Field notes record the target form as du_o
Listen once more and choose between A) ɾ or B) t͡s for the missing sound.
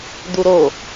A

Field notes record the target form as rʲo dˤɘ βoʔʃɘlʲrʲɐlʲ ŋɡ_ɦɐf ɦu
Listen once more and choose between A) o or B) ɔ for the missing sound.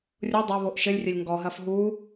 B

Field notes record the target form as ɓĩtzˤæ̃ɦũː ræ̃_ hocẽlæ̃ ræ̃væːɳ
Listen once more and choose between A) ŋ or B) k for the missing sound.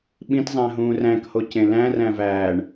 B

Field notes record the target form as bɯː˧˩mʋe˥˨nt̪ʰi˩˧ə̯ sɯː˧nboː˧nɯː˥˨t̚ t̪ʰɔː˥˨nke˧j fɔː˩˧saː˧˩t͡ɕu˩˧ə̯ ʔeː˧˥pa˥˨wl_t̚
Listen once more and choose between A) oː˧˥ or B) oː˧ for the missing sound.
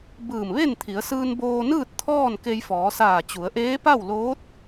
A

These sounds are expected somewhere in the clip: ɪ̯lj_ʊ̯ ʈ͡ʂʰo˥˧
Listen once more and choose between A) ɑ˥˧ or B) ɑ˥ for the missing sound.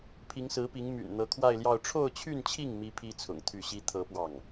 A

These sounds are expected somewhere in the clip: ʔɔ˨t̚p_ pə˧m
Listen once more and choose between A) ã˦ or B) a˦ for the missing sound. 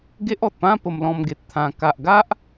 A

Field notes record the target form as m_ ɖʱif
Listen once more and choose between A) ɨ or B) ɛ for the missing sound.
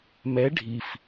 B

